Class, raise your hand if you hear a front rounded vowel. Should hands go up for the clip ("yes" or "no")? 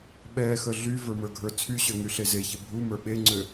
yes